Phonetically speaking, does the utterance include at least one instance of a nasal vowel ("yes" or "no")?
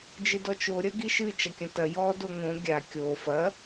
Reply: yes